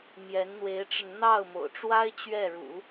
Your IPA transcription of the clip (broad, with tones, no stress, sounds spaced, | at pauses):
m j ɛ˧˥ n n̪ w e˧˥ ɪ̯ ʈ͡ʂ ə˧ n n̪ ɑ˥˩ ʊ̯ m o̰˨˩ ʊ̯ ʈ͡ʂ w a˥ ɪ̯ t͡ɕ ɥ ɛ˥˩ ɻ ṵ˨˩˦